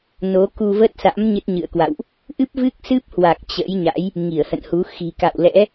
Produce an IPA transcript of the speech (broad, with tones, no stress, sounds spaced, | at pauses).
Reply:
n o˨˦ k u˧ v ə˦˥ t̚ s a̰˧˥ m ɲ ɨ˦˥ t̚ ɲ ɨ̰˧˨ ə̯ k w a̰˧˨ w ʔ | ʔ ɨ˦˥ p̚ v ɨ˦˥ k̚ s ɨ˦˥ p̚ h w a˨˩ k̚ t͡ɕ ə̰˧˥ j ɲ a̰˧˥ j | ŋ i˧˩ ə̯ h ə̰˧˨ n h u˨˦ x i̤˨˩ k a̰˧˨ w l ɛ̰˧˥